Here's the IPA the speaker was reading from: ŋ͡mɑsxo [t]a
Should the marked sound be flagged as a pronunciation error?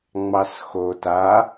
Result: no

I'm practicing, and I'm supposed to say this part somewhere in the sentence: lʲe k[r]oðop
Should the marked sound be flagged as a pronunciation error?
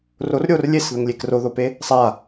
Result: no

